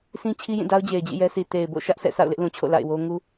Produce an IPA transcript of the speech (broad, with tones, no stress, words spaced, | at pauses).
sĩ˦ t͡ɕʰi˦jĩ˦˨da˦ʊ̯ d͡ʑe˨ɪ̯d͡ʑḭ˦˨jɛ˦sʰi˨ te˨ɪ̯bo̰˦˨ ʃä˦ʔsʰɛ̰˦˨ sa̰˦˨ʊ̯lɪ˦ʔlũ˨t͡ɕʰo̰˦˨ la̰˦˨ɪ̯wo˦ ŋu˦